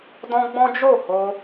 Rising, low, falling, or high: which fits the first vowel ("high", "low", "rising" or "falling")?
high